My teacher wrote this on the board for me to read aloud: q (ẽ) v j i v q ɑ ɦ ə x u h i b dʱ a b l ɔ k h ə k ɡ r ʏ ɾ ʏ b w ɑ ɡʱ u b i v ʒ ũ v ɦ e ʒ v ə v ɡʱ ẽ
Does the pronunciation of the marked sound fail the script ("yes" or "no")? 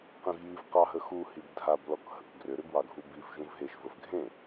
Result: no